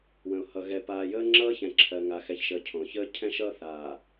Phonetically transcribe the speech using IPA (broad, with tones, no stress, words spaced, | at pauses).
wə̃˨ʊ̯ hʌ˨ɣɛ˨ paː˨jəː˦ŋ͡ǁʌː˦ çɛ̃˨ǁʰɜ˨ŋa˨ xɛ˨çʃəː˨ cʰõ˨çəː˦ cʰɛ̃˦ʃʌː˦θaː˨